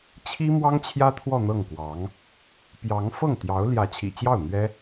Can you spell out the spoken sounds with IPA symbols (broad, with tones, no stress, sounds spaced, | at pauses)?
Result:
t͡ɕʰ i˥ m w ɑ˥ ŋ t͡ɕʰ j ä˥ t̪ʰ w ɔ˥˧ n̪ ɤ˥˩ ŋ k w ɑ˧˥ ŋ | p j ɑ˧˥ ŋ f ɤ˥˩ ŋ t̪ j ɑ˧˥ ʊ̯ l j ä˧˥ t͡ɕʰ ḭ˨˩ t͡ɕ j ɑ˥˩ ʊ̯ n̪ ɥ ɛ˥